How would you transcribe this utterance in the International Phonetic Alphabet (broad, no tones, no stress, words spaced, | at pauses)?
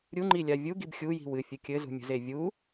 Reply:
ɾʲuŋ͡ǃilʲa vʲuɡib xʲuji̤ wɨfʲɨ kʲɘzṳmʲṳze vʲu